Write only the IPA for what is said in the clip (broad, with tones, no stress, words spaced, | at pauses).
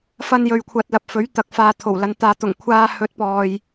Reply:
fɐ˥njɵ˧ɥkʷʰɐ˧t̚lɐ˧p̚ fɵ˨˥ɥ t̪ɐ˨k̚faː˨t̪ʰo˨˩wlɐ˨n t̪aː˨t̪ʊ˨˩ŋ kʷʰaː˧ hɵ˨˥t̚pɔː˨j